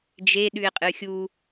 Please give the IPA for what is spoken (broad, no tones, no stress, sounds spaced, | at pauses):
d͡ʒ e ɗ ʉ ɪ̯ qʼ ɨ xʲ u